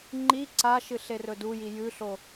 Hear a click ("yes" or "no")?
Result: yes